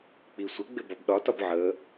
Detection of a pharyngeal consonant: present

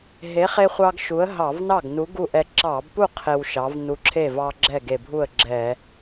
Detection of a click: present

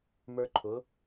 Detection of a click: present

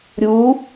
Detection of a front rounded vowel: absent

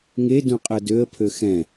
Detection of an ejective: present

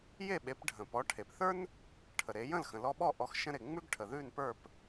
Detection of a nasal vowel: present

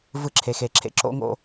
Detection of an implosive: absent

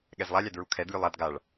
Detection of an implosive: present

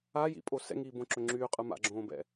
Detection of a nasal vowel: present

